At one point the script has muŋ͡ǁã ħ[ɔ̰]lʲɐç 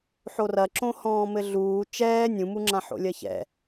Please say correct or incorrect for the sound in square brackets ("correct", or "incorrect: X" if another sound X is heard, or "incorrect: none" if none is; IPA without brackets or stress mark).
incorrect: o̰